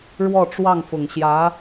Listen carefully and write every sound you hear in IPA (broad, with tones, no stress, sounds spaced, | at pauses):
ɻ w ɔ˥˧ ʈ͡ʂ w ɑ˥˩ ŋ f ʊ˨˩ ŋ ɕ j ä˧˥